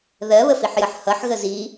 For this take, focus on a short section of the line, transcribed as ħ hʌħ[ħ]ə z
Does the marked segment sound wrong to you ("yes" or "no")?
yes